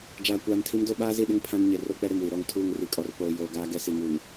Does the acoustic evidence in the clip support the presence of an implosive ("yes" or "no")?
yes